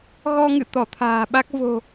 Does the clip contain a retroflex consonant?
no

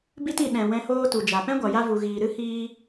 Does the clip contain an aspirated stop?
no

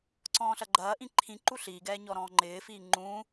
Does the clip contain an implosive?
no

